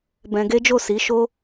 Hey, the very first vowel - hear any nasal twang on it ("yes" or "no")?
yes